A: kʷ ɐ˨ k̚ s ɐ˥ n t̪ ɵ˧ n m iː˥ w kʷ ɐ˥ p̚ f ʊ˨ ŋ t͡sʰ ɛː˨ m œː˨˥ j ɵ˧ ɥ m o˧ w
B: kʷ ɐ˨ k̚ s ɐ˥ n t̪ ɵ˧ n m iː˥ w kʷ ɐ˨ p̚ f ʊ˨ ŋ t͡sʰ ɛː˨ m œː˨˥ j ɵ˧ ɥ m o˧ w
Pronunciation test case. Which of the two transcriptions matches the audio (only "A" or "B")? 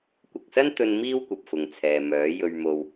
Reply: B